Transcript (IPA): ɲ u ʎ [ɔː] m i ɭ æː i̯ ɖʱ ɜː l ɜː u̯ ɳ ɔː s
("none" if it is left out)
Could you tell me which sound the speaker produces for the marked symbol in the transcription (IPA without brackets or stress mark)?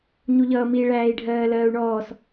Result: ʌː